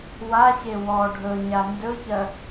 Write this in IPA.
waɕe wɔ ɖʱɵ ɲandɵçɜ

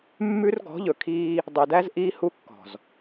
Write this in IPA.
mːʉ˦r ɡɔ̤˨˦ʎɵ˨kʰiː˦ | dˤø˨dæ˦z ʔiː˦hu˦kːɔ̤˨z

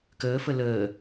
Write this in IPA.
kəːfə ləː

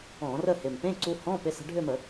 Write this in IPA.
ɔ̃˧˩˧rə˥˧hɪ˨˩m pẽ˧˥˧ǀu˧hɔ̃˧˥˧ pɪ˧sə̤˧ɖʱʏ˥˧mə˧˩˧

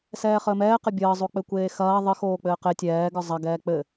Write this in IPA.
sɛːχəːmɛː qɘbʲəː zˤok͡pɘkʷeːxɐː ðˤɘ xoːk͡pɘːqe tʲɛː ɡə˞zˤɐ ɡɛːk͡pɘ

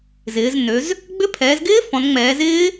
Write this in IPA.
zɪː˩˧znø˩˧z | ɡ͡bʏ˧˥˧pʰɛː˩˧zɡɪː˦˥ fɔ̃˩˧nŋ͡mɛː˩˧zɪː˦˥

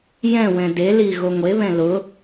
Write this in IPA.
jɛ̃ wɛ̃deli ɣoŋʷeβɛ̃ lʊ

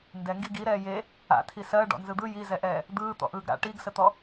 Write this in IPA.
ndɛŋɡi ɡi ɾɛːje | a̰tʰi sɜ ɖɔ̰nzɯd̪ɯ jizɛʔɛː | d̪ɯː t̪ɔ̰ʔɯːɡɾa̰ ʈiɡsət̪ɔ

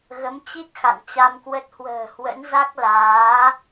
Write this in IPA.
ɣə˨˦mt͡ɕi˦˥t̚ xa̰˧˨nt͡ɕa˧mkwə˦˥t̚ hwə̤ː˨˩hwə̰˧˥n za˦˥k̚ laː˨˦

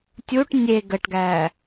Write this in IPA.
tʲuʈ nʲe ɡəʈɡæ

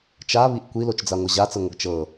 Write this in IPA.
t͡ʃaβiʔ kʷilot͡ʃd͡zaŋʷɐ ʑat͡səŋʷɐɡ t͡ʃɤ

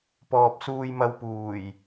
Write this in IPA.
pɔː˨p̚suː˧jmɐ˧wpuː˨˩j

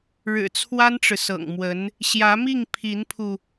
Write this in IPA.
ɻɻ̩˨˩t͡sʰwa˥nʈ͡ʂɻ̩˨ sɤ̰˨˩ŋmwə˧˥n | ɕjä˧˥mi˥˩ŋpʰi˧˥npʰu˧

